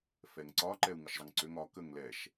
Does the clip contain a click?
yes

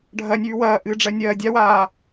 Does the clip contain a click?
no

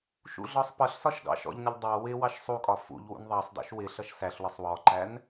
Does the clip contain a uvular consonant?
no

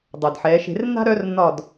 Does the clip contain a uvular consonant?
no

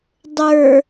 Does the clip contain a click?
no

